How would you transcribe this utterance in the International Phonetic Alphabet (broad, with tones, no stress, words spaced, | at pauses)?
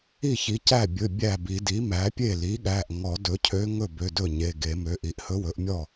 i˥˩çi˩˥cæ˥˩ bʲɵ˩˧˩ bʲæ˥˩bi˨˩˦ di˩˥mæ˩˥pʲe˥˩ li˩˥ɠæ˩˧˩ʔŋɔ˨˩˦ dɵ˩˥cʰø˧˥ ŋɵ˥˩bø˩˧˩dɵ˥˩ɲe˩˧˩ ɡe˨˩˦mø˩˥ʔi˩˥ʔ hɵ˧˥wɵ˩˥ʔmʲɔ˥˩